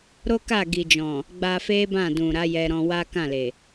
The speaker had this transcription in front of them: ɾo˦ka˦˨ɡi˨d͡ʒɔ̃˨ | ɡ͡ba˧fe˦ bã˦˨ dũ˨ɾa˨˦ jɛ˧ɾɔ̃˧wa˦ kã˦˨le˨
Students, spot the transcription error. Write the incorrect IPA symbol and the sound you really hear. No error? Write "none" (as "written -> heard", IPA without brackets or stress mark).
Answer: none